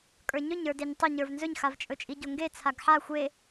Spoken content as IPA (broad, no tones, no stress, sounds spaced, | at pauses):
kʼ ə˞ ɲ ɵ ɲ ə˞ d e ɲ tˤ o ɲ ə˞ v n z ɵ ɲ x a v t͡ʃʼ ɵ t͡ʃʼ i ɟ o ŋ ɡ e t͡sʰ a ɡ ħ a xʷ e